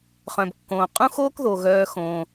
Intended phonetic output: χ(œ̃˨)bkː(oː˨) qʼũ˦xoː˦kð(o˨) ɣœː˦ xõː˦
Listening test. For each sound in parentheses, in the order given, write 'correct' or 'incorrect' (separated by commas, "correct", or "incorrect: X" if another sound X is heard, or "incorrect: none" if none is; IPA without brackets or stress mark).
correct, incorrect: õː˨, correct